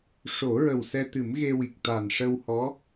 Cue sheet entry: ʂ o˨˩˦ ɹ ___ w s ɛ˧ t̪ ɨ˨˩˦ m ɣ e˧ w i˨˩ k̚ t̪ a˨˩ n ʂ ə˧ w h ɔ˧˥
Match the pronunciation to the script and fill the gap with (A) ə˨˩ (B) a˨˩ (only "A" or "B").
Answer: A